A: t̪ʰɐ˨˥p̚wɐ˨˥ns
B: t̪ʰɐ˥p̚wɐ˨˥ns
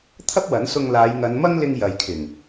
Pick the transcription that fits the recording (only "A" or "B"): B